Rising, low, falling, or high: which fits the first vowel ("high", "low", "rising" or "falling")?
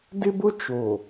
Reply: high